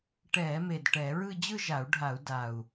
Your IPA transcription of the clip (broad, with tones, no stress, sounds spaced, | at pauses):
ʈ ɛː˧˩˧ m e˨˩ d ʈ ɛ˧˩˧ ɹ ɯ˥˧ d͡ʑ ɯ˥˧ ʒ a˧˩˧ u̯ ɖʱ a˧˩˧ u̯ d a˨˩ u̯